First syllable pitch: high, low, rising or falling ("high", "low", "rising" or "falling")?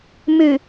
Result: low